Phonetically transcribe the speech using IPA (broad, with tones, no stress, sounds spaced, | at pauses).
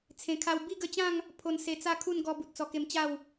t͡sʰ ẽ˨˩ kʰ a˧ w b i˥˧ ɡ ə˧ t͡ɕ ã˥˧ ŋ | pʰ o˧ n s e˧ t͡s a˥˧ kʰ u˥˧ n ɡ ɔ˧ b u˨ t̚ t͡s ɔ˧ k e˧ m t͡ɕ a˥˧ w